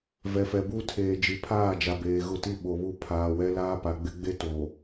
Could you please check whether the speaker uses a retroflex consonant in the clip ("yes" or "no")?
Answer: no